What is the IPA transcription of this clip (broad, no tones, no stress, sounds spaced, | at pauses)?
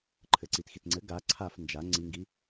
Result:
ǃʰ ɘ ǀ i t x i t ŋ͡ǀ ɘ ɡ a ǀʰ a f n d͡ʒ a ŋ͡ǀ i ŋ ɡ i